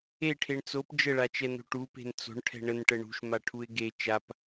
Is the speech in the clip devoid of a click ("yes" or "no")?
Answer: yes